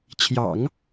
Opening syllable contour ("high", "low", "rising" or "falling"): low